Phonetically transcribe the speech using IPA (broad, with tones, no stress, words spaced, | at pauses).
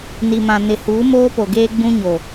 ni˨mã˨ nɪ˨huː˨˦moː˦ po˨ɡeː˦ɡ͡bũ˦ ɲo˨